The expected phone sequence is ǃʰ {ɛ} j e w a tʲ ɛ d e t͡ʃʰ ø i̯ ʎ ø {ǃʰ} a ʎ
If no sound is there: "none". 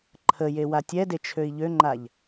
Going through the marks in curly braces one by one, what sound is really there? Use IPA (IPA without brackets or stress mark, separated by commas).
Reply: ə, ŋ͡ǃ